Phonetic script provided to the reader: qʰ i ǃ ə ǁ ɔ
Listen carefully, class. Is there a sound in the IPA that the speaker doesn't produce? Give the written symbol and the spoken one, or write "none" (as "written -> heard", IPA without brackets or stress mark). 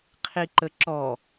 none